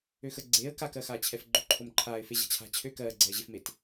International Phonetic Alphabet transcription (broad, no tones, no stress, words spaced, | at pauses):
øxə ɡ͡ǀeːə̯ kakɜxaːt͡ɕʰɛf ɡ͡ǃøǃʰomǃʰaːɪ̯ feʑa̤t͡ɕʰa̤ t͡ɕʰø kɜː ɡ͡ǀɛːʑefmet